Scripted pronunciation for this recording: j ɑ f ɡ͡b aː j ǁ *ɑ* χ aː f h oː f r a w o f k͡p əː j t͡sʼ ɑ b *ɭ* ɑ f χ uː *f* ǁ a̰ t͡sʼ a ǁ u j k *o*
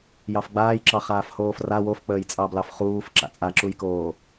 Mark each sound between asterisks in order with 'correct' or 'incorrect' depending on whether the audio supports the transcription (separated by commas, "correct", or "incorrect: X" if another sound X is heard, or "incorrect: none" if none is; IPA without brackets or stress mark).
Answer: correct, incorrect: l, correct, incorrect: oː